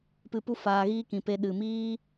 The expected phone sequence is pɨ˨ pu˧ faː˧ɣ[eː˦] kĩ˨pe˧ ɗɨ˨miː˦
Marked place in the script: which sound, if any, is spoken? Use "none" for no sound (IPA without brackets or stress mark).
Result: iː˦